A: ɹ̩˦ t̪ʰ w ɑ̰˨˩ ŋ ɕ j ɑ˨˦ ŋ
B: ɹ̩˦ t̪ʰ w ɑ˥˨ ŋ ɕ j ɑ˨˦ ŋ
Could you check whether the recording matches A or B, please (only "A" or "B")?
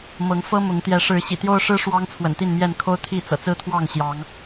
B